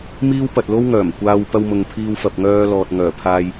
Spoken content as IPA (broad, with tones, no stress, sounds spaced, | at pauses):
m iː˥ w p ɐ˧ t̚ l o˥ w ŋ œː˨˩ m kʷ aː˧ w p ɐ˧ w m ʊ˨ ŋ pʰ iː˧ w f ɐ˨ p̚ ŋ œː˧ l ɔː˨ t̚ ŋ œː˨˩ pʰ aː˧ j